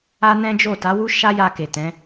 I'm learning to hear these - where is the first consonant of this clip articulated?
tongue tip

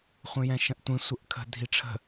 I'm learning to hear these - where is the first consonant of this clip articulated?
uvula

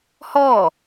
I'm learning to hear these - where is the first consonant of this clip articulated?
throat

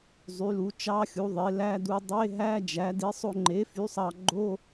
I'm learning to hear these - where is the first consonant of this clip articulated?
tongue tip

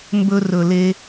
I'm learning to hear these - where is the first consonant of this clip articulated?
lips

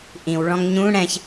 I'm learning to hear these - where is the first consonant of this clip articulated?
throat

